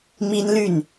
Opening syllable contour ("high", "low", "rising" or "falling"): high